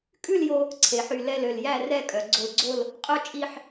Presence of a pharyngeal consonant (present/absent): present